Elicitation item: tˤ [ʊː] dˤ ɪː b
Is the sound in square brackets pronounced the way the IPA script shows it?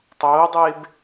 yes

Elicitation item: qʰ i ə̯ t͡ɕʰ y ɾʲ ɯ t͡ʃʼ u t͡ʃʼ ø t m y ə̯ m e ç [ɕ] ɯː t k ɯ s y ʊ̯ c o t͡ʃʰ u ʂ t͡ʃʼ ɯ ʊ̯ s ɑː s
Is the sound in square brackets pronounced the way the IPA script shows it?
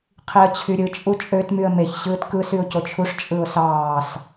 yes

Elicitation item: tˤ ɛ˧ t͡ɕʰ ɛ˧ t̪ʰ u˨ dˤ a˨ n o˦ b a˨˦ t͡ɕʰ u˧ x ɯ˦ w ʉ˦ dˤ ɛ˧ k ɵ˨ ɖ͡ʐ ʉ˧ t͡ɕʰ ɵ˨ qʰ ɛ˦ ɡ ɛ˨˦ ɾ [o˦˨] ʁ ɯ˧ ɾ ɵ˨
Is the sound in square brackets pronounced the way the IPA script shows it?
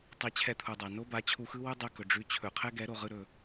no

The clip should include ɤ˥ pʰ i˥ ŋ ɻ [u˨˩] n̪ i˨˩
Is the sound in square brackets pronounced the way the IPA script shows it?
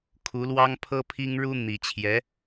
no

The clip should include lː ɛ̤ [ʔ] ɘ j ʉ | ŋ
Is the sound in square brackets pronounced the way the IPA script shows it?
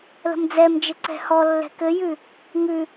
no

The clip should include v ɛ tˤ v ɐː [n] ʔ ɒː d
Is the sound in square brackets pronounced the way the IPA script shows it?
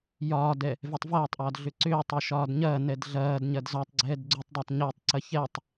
no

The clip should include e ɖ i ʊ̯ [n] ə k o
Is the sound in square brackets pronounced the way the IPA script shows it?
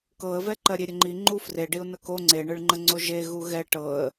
yes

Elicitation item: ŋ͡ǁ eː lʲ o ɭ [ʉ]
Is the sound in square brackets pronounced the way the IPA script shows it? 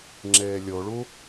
no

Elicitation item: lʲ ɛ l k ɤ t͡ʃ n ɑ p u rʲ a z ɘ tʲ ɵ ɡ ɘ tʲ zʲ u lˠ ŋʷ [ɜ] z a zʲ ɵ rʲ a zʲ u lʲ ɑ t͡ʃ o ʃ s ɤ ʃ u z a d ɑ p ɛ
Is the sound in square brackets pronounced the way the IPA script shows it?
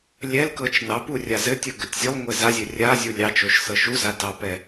no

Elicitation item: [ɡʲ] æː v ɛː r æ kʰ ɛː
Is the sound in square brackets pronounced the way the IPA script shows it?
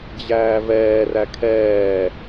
no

